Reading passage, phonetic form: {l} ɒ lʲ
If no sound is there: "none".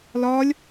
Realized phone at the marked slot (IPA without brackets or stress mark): l